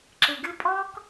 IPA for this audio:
ǁ ɨ˨ ɡ ɨ˧ pʼ ɔ˦ k

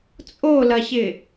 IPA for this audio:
t͡sʼ o l ɐ ɕ ɪ

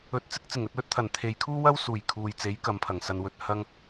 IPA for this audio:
ɵ˨˥ t̚ t͡s ɪ˥ k̚ t͡s ɪ˨˩ ŋ ɵ˧ t̚ w ɵ˥ t̚ t̪ʰ ɐ˨˩ n t̪ʰ e˨ j kʰ uː˥ w ɐ˥ w s uː˨˩ j kʰ uː˨ j t͡s e˨˥ j k ɐ˨˧ m pʰ ɐ˨˩ ŋ s ɐ˧ n w ɵ˧ t̚ h ɐ˥ ŋ

